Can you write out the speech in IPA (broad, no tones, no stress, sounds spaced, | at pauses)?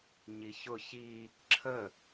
ɲ i ç ʊ ç i | ǁʰ ə